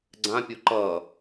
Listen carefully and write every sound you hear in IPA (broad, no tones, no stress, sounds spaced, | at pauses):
ɡ͡ǀ ã pʲ o ǃ ʌ